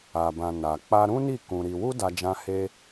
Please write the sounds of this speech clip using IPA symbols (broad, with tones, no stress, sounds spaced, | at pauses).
a˨ b ã˨ n a˨ k͡p a˧ ɾ ũ˦ n i˦˨ k ũ˧ ɾ i˧ w u˦ d a˧ d͡ʒ ã˧ h e˧